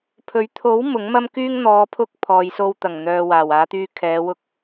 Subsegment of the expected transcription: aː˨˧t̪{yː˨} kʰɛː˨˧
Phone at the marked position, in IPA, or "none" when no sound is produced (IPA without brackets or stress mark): yː˧